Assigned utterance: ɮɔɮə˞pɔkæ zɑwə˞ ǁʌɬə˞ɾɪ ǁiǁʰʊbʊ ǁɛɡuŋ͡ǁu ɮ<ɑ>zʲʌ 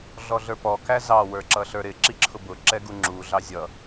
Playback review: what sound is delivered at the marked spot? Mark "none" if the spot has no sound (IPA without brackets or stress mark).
ɑ